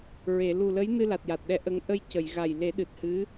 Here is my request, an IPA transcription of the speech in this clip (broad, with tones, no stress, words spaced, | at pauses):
ɹe˨˩˨ lu˨˩lə˧˥j nɨ˧la˨˩t̚ja˨˩t̚ɗɛ˧˥ ʔə˧˥ŋ ʔə˧j cə˨˩˨jɣa˨˩j le˨˩˦ɗɨ˨˩t̚hɨ˧˥